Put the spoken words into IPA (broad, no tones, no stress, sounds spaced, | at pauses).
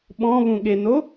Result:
ɓ ɔ̃ β ũ ɠ e n o